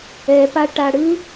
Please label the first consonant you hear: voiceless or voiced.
voiceless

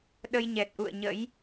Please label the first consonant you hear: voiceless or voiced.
voiced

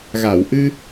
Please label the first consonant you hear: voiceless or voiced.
voiced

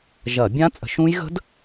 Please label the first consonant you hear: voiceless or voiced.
voiced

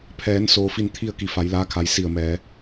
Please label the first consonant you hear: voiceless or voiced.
voiceless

